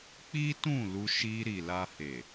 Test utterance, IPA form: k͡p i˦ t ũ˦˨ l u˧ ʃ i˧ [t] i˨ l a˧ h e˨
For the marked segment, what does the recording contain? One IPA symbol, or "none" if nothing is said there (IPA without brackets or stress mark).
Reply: ɾ